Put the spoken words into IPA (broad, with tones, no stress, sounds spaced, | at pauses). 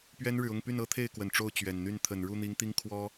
p ɥ ɛ˥ n ɻ ɻ̩˨ ʊ˥˧ ŋ p y˥˩ n ɤ˥ t̪ʰ e˥˩ ɪ̯ k w ə˨˩ n ʈ͡ʂ o˥˩ ʊ̯ t͡ɕ ɥ ɛ˨˩ n n̪ y˥˩ n t̪ʰ ə˨˩ n ɻ u˥˩ n̪ i˧˥ ŋ t̪ i˥ ŋ kʰ w ɔ˥